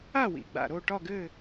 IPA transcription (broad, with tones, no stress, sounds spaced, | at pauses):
a˥˨ w ḭ˩ ɡ͡b a̰˩ ɾ o˥˨ ʈ ɒ˥˨ ɡ ɘ˥˨